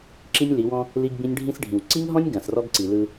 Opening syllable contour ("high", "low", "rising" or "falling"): high